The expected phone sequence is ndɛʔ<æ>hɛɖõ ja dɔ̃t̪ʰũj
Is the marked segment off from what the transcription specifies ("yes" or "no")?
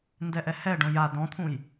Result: yes